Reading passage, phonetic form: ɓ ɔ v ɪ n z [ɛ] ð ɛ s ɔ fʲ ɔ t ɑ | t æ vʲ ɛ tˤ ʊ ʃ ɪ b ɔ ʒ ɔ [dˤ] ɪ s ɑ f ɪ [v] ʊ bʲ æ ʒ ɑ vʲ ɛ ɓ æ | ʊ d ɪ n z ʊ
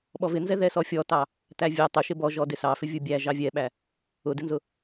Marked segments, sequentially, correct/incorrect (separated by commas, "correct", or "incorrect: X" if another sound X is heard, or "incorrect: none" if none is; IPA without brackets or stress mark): correct, incorrect: d, incorrect: vʲ